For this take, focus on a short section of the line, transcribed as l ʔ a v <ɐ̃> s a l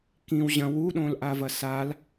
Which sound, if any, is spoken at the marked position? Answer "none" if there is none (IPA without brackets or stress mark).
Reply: ɐ